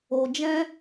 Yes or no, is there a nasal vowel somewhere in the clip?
yes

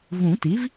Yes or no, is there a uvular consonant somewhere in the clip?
no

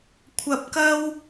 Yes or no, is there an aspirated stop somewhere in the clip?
yes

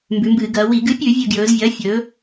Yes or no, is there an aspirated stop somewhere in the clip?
no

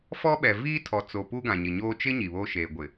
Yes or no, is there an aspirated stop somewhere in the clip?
yes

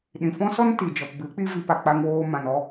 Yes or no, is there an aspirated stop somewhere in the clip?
no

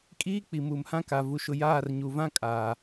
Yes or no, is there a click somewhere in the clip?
no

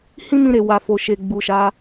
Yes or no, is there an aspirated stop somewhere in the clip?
no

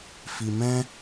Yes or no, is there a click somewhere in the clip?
no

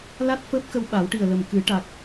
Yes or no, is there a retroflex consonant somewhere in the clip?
yes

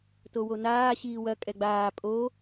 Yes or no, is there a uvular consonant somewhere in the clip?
no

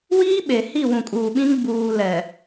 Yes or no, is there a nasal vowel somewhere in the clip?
yes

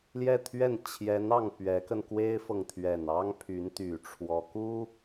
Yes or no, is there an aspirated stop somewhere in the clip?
yes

